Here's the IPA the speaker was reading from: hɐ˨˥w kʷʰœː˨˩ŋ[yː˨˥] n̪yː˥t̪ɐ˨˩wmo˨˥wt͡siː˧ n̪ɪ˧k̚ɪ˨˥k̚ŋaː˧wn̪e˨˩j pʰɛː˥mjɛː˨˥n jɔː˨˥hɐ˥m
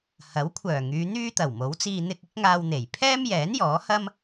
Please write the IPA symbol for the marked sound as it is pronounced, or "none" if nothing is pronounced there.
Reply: yː˨˧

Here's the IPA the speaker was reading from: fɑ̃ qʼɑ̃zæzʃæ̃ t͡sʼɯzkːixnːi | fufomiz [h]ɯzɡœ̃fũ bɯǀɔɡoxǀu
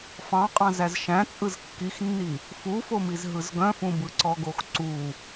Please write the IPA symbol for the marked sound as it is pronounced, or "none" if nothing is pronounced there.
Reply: ɦ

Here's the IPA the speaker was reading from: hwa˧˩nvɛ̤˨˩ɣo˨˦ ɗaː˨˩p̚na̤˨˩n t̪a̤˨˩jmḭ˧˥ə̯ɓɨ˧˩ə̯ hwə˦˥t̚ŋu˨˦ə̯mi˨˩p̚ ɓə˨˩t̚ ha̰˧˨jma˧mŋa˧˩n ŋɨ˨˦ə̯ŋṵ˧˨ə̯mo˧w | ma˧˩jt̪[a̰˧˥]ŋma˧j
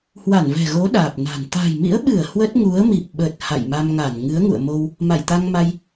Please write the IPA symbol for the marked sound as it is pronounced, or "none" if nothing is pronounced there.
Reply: a˧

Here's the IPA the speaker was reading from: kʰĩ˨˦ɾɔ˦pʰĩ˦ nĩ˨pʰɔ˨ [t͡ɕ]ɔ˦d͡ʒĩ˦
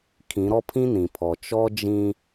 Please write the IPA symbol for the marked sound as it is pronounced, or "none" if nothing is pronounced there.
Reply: t͡ʃ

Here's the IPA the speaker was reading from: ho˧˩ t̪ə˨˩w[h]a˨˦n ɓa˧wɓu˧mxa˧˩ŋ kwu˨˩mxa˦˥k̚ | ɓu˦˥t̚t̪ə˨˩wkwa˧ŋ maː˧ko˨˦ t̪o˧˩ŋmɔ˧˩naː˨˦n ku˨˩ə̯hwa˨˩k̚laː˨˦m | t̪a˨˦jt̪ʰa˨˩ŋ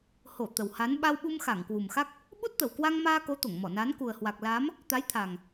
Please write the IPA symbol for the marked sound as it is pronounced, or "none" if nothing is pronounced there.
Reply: h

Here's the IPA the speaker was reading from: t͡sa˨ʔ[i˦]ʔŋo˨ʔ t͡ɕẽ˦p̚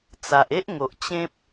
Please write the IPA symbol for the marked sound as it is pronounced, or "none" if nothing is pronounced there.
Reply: e˦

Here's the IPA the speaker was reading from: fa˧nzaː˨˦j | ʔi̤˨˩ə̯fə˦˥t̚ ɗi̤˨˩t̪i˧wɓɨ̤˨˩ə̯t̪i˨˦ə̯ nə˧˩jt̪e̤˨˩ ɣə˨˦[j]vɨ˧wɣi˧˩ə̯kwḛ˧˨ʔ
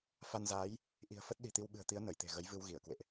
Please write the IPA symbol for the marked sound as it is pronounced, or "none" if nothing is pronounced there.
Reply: j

